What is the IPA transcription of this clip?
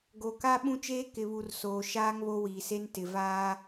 ɡo˨ka˦ ɓũ˦t͡ʃeː˦ kɪ˨βu˨r soː˨ʃaː˦ŋ βo˦wiː˨se˦n tɪ˨vaː˦

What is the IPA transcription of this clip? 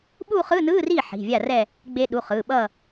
ɓu˥˧χɯ˧˥˧nɯː˧˥˧ ri˥˩ ħi̤˩˧˩vʲa˥˩ rɛ˥˧ | ɡ͡be˧ɗu˩˧˩ χɯ˩˧˩ɓʌ˥˧

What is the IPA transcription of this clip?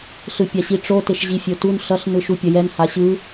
ɬɯpʲaɕiʈ͡ʂo teʃʑifʲotun ɬʌɬ nɯʃupʲʌjɛn haɕɯ

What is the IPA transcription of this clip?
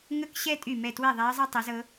ŋə˥˨kɕɛ˥ tʼy˥˨mɛ˥˨ twe˥˨ðˤɛ˧˥ɐ̯zˤɛ˥ tˤe˧˥zɤ˧˥

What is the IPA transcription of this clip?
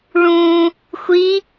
ɭũ | xʷi

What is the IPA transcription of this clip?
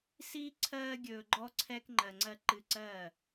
siː˦ ǀʰɜː˧ɡʲɵː˨ ɡ͡ǃɔ˦ǀʰɛː˦k ŋ͡ǃɜ˧ŋ͡ǀɜ˦ ǃɨ˧ǀɜ˦˨

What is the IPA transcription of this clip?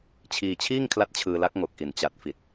t͡ɕʰiː˧t͡ɕʰiː˥˩ŋkʰla˦˥t̚ t͡ɕʰɯː˧la˦˥k̚ŋo˨˩k̚ʔi˨˩n t͡ɕa˨˩t̚fi˨˩t̚

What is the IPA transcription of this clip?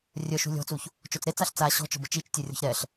rʲœʃṳ lʲɔ̤t͡suç | t͡ʃot͡sɾet͡saɬ t͡sa ɕɔ̤t͡ʃɔ̤bə t͡ʃit͡ʃtʲø rʲɔ̤çɾɛɬ

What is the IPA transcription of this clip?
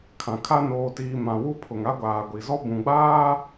kʰã˨kʰa˦ noː˨tiː˨ mã˨wu˦pʰʊ˨ŋ a˦ɡʷaː˨ɡʷi˨zɔ˦ bũ˨ɡ͡baː˦

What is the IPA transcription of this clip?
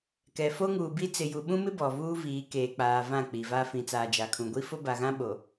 kɛ˨ fo˦ŋuː˨bi˦ t͡sɪ˨ju˨ɓũ˦mɪ˦ bɔ˨vuː˦viː˨˦ keː˨k͡paː˨ vã˦˨k͡pi˨va˦ fĩ˨t͡saː˨d͡ʒa˨kʰũ˨ ɡʷi˦fʊ˦ba˨ɣã˦ ɓo˨

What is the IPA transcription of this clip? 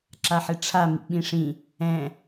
ǁaħeʈ͡ʂʰa mḭɓĩʂĩ | ɛ̃

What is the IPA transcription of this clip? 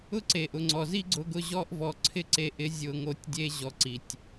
ʊ˦ǀe˨ʔʊ˨ ŋ͡ǀɔ˨zi˦ɡ͡ǀʊ˧ɡʊ˧ ʑɔ˧ʔvɔ˨ ǀʰɪ˦ǀe˧ʔɪ˨˦ zʲʊ˨ŋo˨tʲdʲe˧ ʑɔ˨ǀi˨tʲ

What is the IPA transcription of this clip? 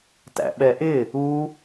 tæ̰ɓɛʔɪ | u

